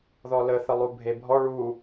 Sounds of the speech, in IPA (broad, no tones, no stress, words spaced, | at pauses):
ðɔlə θəlˠubʱebʱɔ ɭu